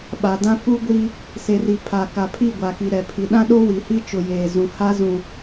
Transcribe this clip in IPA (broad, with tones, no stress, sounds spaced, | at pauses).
ɓ a˨ d ã˦ f u˦ ɡʷ iː˦ | s e˨ r i˨ pʰ a˨ k a˨ pʰ i˦˨ ɡʷ a˨ k i˨ ɾ ɛ˨ pʰ i˨ ɗ ã˦ ɗ o˦ w i˨ h i˦ t͡ʃ ʊ˨ j eː˨ z ũ˨ h a˦ z ũ˨